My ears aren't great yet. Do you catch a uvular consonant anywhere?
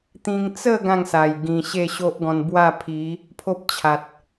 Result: no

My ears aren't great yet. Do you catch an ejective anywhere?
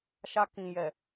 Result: no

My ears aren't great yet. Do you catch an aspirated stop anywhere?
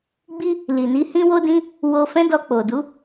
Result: no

